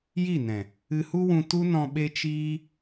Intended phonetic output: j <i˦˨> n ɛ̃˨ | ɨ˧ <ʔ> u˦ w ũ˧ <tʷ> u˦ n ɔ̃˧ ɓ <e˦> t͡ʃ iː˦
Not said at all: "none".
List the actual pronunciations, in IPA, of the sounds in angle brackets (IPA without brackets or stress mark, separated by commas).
i˦˨, h, t, e˦